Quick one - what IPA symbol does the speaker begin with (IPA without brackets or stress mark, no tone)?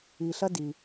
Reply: i